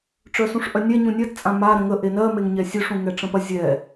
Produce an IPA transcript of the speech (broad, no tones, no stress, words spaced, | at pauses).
ʈ͡ʂœsũʂʔœnʲɛ ɲũnʲɜt t͡sʼãma ɾə̃ŋə ʔenɜ meŋɲɛsʲøʂ ũŋɛʈ͡ʂə̃pɐ zʲɛ